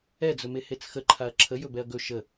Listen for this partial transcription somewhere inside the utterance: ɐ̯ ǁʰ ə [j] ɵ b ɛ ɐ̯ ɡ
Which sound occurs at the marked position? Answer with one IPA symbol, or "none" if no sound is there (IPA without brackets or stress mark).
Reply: j